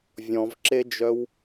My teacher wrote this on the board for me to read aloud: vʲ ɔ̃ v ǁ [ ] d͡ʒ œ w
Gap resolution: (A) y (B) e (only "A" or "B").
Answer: B